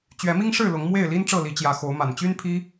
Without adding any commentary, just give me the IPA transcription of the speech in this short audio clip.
t͡ɕ ɥ ɛ˨˦ m i˦ ŋ ʂ ɻ̩˥˨ l ʊ˨˦ ŋ m w e˥˨ ɪ̯ l i˦ n ʈ͡ʂ ɤ˥˨ l i˨˦ t͡ɕ j ä˨˦ x o˨˦ ʊ̯ m a˨˩ n t͡ɕ y˦ n pʰ i˦

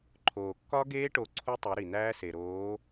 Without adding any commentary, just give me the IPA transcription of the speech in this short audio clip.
ǃʰ oː˩ kː ɒ˦˥ ɡ eː˦˥ ʈ o˨˥ ǀʰ u˦˥ tˤ o˨˥ ɾ i˩ n̪ æː˦˥ s e˩ ɾ oː˨˥

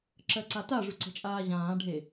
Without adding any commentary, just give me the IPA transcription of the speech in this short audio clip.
ǁ ɜ ǀ a t a ʐ ʉ ǀ ə̤ t͡ʃʼ aː ʑ ãː ɖʱ e

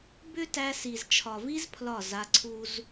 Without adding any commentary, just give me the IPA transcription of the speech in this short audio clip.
b ʏ˦ t æ˧ s i˨ z t͡ʃʰ ɒ˨ v i˦ z pʰ l ɒ˦˨ z a˧ ǀʰ u˦ z

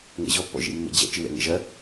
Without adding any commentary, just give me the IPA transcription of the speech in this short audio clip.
ŋ ɛ̰ ʑ ɔ pː ɔ̰ ʒ ḭ mː ḛ d͡ʑ ɛ̰ t͡ʃ ɨ w ɛ̰ ŋ ɛ̰ ʒ ɐ

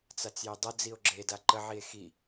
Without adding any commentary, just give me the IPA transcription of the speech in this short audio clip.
t͡s a t͡s j e dˤ ə d͡z i o̯ ɡ͡ǁ e d a ǃ ə ʕ i e̯ x i

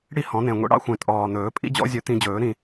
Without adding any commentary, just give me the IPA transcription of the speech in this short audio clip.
ɽ i˥˩ h ɔ̃˨˩˦ n̪ ẽ˨˩ ŋʷ ḭ˨˦ ɽ ɑ̰˦ xʷ ẽ˨˩ tʼ ɔː˨˩ n̪ ɵː˨˩˦ pʼ ḭ˦ d͡ʑ ɔ̰˨˦ zʲ ɵ˨˩˦ t̪ ĩ˨˦ d͡ʑ ɵː˨˩˦ ɾ ĩ˥˩

